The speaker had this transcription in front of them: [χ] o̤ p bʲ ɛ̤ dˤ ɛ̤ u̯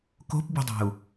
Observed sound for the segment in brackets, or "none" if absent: k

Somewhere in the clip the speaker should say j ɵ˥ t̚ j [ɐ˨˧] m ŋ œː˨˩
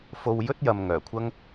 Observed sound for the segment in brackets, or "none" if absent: ɐ˨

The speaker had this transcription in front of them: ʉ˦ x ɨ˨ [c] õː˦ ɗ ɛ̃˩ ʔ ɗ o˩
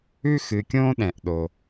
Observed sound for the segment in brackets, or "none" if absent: kʲ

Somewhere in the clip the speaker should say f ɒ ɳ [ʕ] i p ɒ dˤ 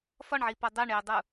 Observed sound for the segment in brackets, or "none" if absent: ʕ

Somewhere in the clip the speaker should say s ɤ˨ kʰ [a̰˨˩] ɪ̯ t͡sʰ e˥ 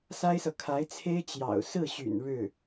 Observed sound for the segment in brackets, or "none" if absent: a˧˥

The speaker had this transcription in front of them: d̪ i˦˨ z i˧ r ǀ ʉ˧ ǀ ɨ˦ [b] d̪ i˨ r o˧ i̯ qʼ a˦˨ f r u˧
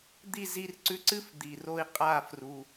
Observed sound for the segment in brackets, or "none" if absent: f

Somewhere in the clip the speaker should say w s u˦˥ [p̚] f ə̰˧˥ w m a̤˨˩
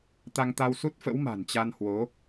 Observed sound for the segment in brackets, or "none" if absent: t̚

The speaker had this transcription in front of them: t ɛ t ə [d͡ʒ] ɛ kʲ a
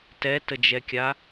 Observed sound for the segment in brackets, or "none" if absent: d͡ʒ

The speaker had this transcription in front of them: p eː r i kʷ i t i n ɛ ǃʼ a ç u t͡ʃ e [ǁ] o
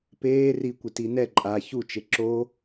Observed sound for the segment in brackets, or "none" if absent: ǁ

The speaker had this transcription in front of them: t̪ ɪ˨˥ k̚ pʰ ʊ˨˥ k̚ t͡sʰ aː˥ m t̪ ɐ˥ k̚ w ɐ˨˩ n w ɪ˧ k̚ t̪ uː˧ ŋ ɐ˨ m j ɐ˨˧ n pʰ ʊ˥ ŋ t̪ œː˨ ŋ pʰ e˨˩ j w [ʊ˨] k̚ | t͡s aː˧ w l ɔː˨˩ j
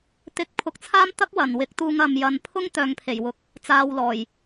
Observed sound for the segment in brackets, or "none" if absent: ʊ˨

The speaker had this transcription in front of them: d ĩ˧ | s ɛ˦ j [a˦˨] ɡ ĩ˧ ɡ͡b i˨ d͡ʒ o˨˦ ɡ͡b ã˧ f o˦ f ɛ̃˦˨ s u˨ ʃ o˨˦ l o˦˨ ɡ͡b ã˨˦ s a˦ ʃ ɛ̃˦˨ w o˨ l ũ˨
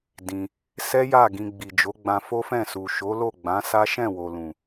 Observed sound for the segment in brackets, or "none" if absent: a˦˨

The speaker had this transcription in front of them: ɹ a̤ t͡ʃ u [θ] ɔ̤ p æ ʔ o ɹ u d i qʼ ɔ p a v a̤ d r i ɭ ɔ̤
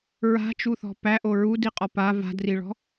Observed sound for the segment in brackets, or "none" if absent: θ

